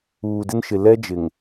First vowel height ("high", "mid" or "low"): high